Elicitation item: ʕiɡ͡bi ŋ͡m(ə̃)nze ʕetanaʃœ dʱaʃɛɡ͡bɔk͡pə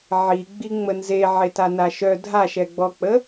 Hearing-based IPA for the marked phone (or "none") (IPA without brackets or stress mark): ə